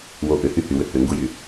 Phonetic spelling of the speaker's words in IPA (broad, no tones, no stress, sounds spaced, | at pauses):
w o ʔ ʏ h y h y w ʏ h ʏ ŋ ɡ u j y